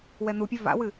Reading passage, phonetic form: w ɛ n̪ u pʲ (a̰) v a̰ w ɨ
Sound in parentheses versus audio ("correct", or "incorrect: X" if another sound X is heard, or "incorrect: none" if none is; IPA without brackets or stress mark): incorrect: a